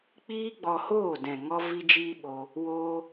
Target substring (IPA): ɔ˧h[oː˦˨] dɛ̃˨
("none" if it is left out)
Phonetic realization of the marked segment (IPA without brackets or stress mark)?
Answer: oː˦˨